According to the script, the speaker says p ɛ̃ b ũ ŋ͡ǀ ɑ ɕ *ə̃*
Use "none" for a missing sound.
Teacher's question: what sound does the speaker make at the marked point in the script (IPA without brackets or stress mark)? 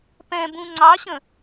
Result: ə̃